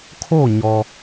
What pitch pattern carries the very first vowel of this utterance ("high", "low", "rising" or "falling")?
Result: falling